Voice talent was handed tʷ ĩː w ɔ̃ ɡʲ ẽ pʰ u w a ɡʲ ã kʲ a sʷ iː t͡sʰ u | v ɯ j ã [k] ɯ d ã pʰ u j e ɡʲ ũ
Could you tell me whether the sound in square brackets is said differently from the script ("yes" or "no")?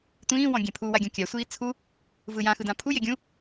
yes